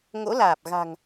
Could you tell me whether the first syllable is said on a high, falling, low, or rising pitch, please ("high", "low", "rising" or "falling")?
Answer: rising